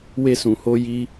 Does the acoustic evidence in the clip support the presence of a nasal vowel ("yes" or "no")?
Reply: yes